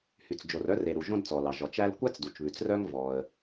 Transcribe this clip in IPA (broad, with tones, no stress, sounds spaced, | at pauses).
h y˩ t͡s d͡ʒ o˩ r œ˥ r e˩ ɾ u˩ ʒ õ˥ d t͡s ɔ˩ l ɑ˩ ʒ ɔ˩ t͡ʃ æ˥ l kʷ æ˥ t͡s d u˩ t͡ʃ β ʉ˩ t͡s r œ˥ ŋ v ɔ˩ ə̯